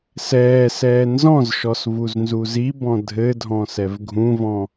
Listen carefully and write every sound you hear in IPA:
s ɛː s ɛː n z ɔ̃ z ʃ ɔ s v u z n z u z i b ɔ̃ dʱ ɘ dʱ ɔ̃ s ɛ v ɡʱ ũ v ɔ̃

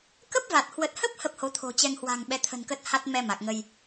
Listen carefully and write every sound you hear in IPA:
k ə˦˥ p̚ v a˨˩ t̚ h w ə˨˩ t̚ h ə˦˥ p̚ h ə˦˥ p̚ h o˨˦ t̪ʰ o̤˨˩ t͡ɕ ɛ˧ ŋ h w a̤˨˩ ŋ ɓ ɛ˨˦ t̪ʰ ə̤˨˩ n k ə˦˥ t̚ h a˦˥ t̚ m ɛ˧ m a˨˩ k̚ ŋ ə˧ j

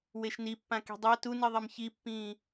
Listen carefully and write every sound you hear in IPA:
w e ʃ n i pː ã k i̤ dˤ a t u n i ðˤ ɛ m ç i pː ĩː

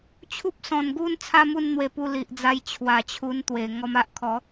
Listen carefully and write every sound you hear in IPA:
t͡ɕʰ u˦ p̚ s ɔ̃˨˩ n ɡ u˥˧ n t͡sʰ a˦ m u˥˧ n n̪ w e˧ p u˧ l i˨ ʔ d͡z a˧ j t͡ɕʰ w a˨˩ t͡ɕʰ u˧ n t̪ w e˨˩ ŋ ɔ˧ m a˦ ʔ kʰ ɔ˨˦

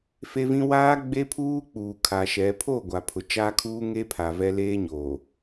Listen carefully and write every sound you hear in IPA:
f e˦ v ĩ˦ w aː˦ ɡ͡b e˦ pʰ uː˦ k͡p uː˨ kʰ a˨ ʃ ɛ˨˦ pʰ o˦˨ ɡʷ a˨ pʰ ʊ˨ t͡ʃ aː˦ kʰ uː˦ ŋ e˦ pʰ a˨ v ɛ˦ l eː˦ ɲ oː˨

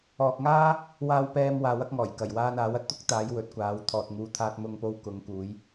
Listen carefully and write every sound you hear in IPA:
ɔː˨ k̚ ŋ aː˥ | w aː˨ w p ɛː˨ m w aː˨ w ɐ˧ k̚ ŋ ɔː˨˩ j k ɐ˨˩ j w aː˧ n aː˨˥ w ɐ˧ t̚ t̪ ʊ˥ k̚ t̪ aː˨˧ j w ɵ˨˥ t̚ kʷ aː˨˧ w t̪ʰ ɔː˨ t̚ ŋ uː˨˧ t̪ʰ aː˧ t̚ m ʊ˧ ŋ p o˧ w k ʊ˨˧ ŋ k uː˨˧ j

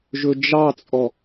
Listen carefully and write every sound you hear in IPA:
ʒ ɵ d͡ʒ ɑ t͡sʼ ɔ

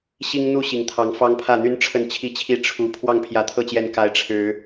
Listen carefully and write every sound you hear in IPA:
ɕ i˦ ŋ n̪ u˥˨ ɕ i˨˩ ŋ t̪ʰ ɑ˨˦ ŋ f ɑ˦ ŋ pʰ ä˥˨ n̪ y˦ n ʈ͡ʂʰ ə˥˨ n t͡ɕʰ i˥˨ t͡ɕʰ i˥˨ ʈ͡ʂʰ u˨˦ pʰ w ɑ˥˨ ŋ pʰ j ä˨˦ t̪ʰ ɤ˥˨ t͡ɕ j ɛ˨˦ n k a˨˦ ɪ̯ ʈ͡ʂʰ ɻ̩˨˦

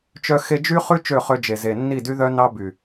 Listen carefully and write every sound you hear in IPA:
t͡ʃ œ˦ x e˧ d͡ʒ y˦ χ ʉ˦ t͡ʃ ø˦˨ χ ø˧ d͡ʒ e˨ z e˨ nː i˦˨ d y˦ ð œ˦ n ɑ˦ b y˨

